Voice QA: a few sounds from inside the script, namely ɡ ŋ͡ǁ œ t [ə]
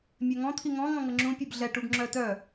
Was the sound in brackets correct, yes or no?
no